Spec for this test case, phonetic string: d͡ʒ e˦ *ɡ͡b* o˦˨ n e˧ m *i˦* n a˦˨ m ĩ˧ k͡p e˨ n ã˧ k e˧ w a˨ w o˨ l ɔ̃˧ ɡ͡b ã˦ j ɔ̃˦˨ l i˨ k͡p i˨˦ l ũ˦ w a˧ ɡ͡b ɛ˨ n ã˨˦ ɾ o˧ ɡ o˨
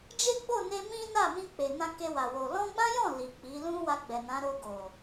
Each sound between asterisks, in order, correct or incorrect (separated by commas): correct, incorrect